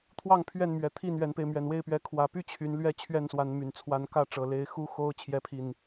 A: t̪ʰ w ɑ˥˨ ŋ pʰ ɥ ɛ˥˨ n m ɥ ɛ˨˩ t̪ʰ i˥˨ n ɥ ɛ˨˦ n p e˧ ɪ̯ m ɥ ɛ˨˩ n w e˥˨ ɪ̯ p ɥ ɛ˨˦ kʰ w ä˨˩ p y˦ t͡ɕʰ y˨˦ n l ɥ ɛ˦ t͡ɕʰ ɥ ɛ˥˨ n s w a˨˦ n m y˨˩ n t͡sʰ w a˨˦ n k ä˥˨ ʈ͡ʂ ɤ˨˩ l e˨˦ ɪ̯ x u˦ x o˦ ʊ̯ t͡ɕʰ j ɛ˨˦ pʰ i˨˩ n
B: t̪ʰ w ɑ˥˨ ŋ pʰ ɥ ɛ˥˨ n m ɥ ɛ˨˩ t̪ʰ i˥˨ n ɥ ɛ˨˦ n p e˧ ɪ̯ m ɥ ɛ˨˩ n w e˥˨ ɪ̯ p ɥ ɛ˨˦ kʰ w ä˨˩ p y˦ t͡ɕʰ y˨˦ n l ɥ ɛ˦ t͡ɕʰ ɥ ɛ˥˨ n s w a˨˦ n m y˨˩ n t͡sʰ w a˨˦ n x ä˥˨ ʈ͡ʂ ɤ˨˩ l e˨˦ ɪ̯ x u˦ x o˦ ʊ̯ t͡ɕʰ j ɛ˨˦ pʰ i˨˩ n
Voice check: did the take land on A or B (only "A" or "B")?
A